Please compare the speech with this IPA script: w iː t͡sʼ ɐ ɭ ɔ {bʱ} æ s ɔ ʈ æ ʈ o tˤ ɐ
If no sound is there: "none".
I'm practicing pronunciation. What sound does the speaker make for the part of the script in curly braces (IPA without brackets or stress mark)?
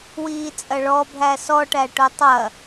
bʱ